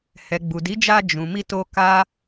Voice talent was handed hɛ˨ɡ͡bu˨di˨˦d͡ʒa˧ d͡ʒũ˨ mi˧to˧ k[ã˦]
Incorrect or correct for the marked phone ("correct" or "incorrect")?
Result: incorrect